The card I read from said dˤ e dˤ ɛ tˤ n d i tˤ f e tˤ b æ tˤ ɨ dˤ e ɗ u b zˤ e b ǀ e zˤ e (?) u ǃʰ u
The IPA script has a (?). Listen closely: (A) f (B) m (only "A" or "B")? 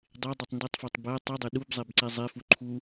A